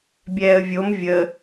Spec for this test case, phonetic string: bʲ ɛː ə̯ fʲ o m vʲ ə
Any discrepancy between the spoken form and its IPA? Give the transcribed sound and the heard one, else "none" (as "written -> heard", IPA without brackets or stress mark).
fʲ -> vʲ